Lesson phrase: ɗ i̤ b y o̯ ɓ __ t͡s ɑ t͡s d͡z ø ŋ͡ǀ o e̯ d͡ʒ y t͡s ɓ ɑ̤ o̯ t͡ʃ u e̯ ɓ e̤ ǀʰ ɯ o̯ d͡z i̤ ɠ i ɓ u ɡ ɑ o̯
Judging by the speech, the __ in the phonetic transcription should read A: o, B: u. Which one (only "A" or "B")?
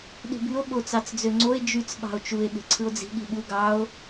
A